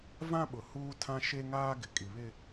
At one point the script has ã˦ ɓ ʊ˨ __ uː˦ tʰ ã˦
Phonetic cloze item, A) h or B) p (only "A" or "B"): A